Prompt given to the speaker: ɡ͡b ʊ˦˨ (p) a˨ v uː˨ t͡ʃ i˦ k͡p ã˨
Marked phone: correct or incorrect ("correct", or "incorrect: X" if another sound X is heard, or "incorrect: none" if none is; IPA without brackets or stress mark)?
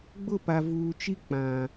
correct